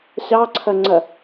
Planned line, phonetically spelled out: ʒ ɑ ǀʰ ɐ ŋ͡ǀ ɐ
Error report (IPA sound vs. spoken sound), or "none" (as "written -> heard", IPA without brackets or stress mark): ʒ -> ɕ